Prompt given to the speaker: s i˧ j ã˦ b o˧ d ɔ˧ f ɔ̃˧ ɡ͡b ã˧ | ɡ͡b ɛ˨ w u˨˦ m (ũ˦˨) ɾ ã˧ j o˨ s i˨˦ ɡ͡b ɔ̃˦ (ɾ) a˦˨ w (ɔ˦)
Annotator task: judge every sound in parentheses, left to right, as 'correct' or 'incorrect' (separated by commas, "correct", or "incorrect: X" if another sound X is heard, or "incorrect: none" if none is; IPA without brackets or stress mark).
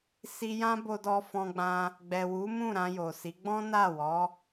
correct, incorrect: n, incorrect: ɔ˨˦